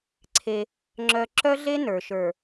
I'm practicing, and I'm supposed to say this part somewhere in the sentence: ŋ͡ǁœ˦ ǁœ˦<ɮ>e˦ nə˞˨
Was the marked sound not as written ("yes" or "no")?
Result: no